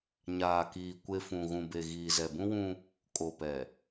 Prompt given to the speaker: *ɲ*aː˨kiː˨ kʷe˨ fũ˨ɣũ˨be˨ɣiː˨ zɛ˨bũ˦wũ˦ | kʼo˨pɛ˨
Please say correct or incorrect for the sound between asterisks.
correct